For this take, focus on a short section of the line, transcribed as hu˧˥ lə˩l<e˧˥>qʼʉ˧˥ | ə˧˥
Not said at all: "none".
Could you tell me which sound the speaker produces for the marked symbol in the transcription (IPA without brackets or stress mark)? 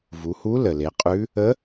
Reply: e˩˧